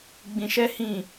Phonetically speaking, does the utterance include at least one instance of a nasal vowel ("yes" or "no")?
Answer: yes